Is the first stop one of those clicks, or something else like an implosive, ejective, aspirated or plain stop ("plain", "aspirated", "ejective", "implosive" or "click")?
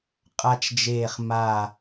ejective